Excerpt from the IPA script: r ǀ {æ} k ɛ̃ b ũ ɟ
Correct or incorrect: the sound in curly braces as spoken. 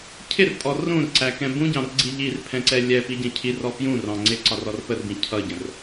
correct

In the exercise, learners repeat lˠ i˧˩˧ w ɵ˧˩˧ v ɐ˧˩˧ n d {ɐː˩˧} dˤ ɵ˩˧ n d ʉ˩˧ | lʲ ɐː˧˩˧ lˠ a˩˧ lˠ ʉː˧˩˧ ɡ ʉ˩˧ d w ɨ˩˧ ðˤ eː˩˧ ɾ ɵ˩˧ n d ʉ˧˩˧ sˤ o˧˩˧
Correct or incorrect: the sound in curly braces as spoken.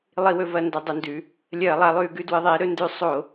incorrect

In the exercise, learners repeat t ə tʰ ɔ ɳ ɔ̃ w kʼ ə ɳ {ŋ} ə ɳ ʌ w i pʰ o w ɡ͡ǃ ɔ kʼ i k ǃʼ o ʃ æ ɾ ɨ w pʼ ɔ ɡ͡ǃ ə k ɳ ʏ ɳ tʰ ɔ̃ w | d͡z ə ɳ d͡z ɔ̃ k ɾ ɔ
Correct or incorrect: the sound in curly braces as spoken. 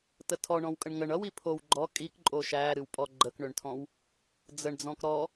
correct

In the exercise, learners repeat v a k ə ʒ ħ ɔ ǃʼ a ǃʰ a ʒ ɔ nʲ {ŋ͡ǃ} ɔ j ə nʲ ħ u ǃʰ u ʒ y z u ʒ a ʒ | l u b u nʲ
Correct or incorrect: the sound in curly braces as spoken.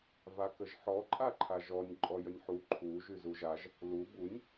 incorrect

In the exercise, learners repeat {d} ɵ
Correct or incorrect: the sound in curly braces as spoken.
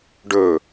incorrect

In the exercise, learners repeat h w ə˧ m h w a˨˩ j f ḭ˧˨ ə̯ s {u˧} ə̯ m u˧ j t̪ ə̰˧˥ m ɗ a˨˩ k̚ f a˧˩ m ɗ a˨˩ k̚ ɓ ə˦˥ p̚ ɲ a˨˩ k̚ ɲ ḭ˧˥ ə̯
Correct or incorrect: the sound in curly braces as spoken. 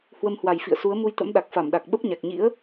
incorrect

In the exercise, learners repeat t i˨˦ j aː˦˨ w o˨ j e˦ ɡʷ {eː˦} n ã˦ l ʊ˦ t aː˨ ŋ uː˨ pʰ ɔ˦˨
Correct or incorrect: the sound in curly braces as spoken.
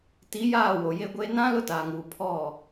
correct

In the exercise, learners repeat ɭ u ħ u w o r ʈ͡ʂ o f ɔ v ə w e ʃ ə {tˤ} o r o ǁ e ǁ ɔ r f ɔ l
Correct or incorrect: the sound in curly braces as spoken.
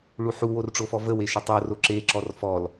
correct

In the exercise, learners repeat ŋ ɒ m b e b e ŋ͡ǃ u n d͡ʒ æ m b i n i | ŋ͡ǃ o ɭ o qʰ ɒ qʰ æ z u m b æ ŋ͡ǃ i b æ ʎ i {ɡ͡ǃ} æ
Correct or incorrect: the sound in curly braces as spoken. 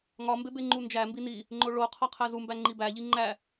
incorrect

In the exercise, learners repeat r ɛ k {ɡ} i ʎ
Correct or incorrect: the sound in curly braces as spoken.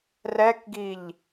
correct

